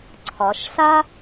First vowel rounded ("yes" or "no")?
yes